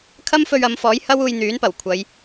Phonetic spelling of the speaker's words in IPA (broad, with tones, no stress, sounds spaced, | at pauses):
kʰ ɐ˥ m f ɵ˧ ɥ ɐ˨˧ m f ɔː˨˥ j h ɐ˥ w uː˧ j n̪ yː˨˥ n p ɐ˨˩ w kʷʰ ɐ˨˧ j